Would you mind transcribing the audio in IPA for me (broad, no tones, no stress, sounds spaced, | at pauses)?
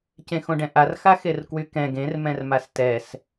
c ẽ x õ ɖ ɛ̃ ʔ a r x a x e r k w y k ɛ̃ ɡ ẽ r m ɛ̃ r m a s t ɛ s